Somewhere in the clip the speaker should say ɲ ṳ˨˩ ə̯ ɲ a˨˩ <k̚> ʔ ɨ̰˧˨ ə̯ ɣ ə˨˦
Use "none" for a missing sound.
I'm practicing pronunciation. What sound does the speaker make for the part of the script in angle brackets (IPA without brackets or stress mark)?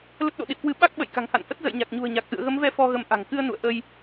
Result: k̚